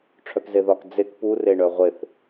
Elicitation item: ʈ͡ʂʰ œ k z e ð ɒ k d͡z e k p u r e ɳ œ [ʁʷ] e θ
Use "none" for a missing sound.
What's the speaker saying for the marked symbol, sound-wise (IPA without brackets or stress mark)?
ʁʷ